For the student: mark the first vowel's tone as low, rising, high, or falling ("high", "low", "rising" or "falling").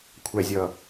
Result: low